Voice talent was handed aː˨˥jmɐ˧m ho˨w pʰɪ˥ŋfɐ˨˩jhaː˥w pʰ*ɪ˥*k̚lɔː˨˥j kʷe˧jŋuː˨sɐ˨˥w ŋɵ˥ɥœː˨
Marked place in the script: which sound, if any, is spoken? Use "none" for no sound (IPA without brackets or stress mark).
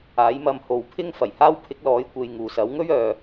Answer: ɪ˨˥